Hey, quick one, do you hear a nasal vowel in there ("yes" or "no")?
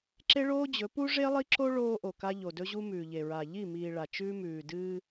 no